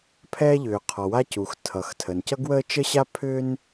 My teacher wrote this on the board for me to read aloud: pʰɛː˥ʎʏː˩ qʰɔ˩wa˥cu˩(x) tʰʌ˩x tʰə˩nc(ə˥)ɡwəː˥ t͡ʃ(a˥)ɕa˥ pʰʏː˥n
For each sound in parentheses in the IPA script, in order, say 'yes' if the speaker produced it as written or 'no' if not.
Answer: yes, no, no

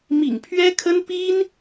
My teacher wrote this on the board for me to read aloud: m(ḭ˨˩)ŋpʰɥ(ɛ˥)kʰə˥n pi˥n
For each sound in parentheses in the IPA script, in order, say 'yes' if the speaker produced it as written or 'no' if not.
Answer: yes, yes

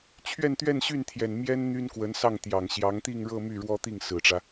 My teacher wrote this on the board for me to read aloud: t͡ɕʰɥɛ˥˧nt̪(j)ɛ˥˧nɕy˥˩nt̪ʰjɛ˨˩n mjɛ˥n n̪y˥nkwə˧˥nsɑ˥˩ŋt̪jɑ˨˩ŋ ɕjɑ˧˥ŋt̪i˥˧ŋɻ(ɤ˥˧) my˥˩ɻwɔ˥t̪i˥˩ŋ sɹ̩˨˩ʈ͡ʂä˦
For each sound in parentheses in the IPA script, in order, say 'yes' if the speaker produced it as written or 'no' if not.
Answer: no, yes

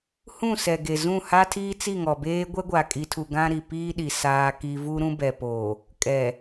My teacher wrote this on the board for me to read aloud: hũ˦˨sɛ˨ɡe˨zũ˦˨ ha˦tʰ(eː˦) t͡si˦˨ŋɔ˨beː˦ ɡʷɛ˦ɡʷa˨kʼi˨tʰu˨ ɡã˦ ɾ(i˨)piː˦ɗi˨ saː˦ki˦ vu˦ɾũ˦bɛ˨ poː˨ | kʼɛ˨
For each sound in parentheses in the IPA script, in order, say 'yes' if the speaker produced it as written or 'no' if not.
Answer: no, yes

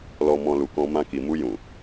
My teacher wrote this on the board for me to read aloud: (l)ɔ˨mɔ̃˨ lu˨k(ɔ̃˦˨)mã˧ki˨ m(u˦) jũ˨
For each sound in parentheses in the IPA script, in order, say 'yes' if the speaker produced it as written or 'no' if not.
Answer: yes, no, no

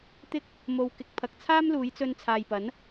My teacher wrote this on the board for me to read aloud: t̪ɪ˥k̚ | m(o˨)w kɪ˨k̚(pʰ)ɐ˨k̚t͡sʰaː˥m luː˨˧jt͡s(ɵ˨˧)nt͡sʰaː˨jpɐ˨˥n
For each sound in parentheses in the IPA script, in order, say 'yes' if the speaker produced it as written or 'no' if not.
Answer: yes, yes, no

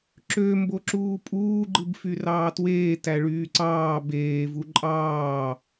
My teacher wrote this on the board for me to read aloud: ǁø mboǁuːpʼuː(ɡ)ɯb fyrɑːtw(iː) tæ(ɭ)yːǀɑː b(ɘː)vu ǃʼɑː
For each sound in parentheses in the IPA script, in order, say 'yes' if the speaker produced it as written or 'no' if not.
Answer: no, no, yes, no

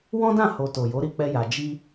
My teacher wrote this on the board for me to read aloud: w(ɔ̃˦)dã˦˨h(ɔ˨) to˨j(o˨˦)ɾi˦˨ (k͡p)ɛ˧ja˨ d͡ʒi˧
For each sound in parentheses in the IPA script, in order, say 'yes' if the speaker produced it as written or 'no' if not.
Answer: yes, no, yes, yes

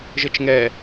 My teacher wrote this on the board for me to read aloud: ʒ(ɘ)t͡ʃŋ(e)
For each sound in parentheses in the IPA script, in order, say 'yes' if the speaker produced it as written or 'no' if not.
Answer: yes, no

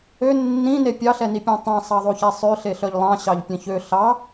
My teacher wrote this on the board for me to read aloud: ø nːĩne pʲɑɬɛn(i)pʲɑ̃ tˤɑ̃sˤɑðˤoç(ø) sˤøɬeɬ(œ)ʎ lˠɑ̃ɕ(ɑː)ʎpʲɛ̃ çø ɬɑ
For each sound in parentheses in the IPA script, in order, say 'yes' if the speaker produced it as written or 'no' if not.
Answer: yes, no, yes, no

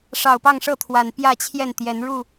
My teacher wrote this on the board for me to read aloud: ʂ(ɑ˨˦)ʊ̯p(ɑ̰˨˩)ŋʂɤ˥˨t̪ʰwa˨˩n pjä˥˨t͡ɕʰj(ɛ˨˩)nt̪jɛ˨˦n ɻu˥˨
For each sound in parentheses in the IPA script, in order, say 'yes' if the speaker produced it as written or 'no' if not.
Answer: no, no, no

